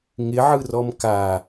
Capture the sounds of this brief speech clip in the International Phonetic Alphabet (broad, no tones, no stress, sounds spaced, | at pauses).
ŋ ɪ ʕ ɯ r ɔ m k a